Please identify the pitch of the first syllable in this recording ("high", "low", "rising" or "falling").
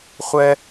low